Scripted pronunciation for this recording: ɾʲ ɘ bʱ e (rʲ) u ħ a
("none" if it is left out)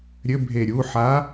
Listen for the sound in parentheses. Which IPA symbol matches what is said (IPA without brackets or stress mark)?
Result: ɾʲ